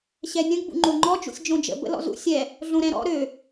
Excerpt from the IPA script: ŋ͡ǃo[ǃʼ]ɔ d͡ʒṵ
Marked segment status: incorrect: ŋ͡ǃ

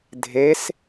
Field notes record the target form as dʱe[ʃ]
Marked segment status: incorrect: s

